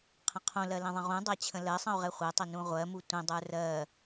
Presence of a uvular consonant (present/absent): present